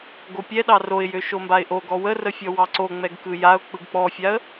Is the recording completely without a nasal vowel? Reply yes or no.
yes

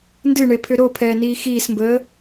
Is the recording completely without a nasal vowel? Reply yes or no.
yes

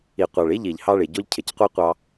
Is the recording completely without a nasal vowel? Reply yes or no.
yes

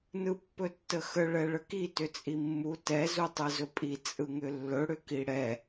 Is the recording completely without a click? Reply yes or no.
yes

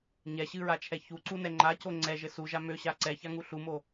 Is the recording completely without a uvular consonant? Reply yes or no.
yes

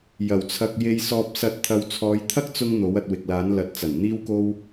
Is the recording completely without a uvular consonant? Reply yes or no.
yes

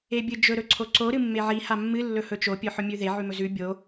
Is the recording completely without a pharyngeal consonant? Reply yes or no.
no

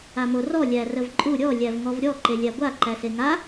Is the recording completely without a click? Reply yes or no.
no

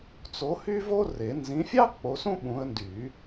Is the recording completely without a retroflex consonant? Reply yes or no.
yes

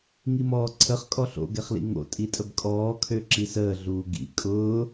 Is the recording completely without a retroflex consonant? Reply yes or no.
yes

